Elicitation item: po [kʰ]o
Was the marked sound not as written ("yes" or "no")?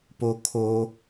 no